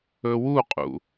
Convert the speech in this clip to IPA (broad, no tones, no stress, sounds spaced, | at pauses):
ɵ w u qʼ ṵ